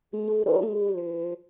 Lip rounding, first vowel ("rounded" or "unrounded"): rounded